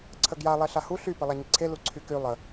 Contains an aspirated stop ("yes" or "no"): yes